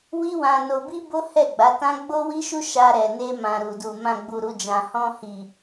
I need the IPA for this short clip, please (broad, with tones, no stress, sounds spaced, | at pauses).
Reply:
w i˦ w ã˧ n o˧ b i˦ b o˦ h ɛ˦˨ ɡ͡b a˨˦ t ã˦ ɡ͡b o˦ w i˦ ʃ u˦ ʃ a˧ ɾ ɛ˨ n e˧ m ã˨ ɾ u˨ d u˨ m ã˨ ɡ͡b u˨ ɾ u˨ d͡ʒ ã˨ h ɔ̃˧ h i˨